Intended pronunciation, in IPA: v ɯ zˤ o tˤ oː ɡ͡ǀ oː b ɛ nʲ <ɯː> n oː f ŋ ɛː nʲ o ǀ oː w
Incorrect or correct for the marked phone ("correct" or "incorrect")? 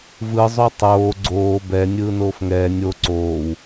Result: correct